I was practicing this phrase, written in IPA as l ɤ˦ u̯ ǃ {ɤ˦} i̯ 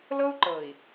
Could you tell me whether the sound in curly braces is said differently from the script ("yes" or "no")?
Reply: yes